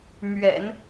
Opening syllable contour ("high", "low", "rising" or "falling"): low